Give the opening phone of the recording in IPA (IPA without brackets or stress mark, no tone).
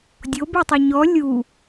dʲ